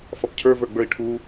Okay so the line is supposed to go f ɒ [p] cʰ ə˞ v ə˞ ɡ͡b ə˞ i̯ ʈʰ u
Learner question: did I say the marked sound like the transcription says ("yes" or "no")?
yes